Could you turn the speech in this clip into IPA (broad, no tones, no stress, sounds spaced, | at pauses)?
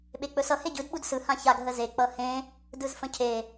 ɓ e k͡p ɵ s ʌ h e ɟ ɯ d ɓ u d s ɯ h ã ç a ɡ ɦ ə z e k͡p ʌ h ẽ | d ɯ z f ə̃ cʰ e